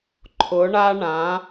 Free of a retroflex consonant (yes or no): no